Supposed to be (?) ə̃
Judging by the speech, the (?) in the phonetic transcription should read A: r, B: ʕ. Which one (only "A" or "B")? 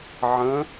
B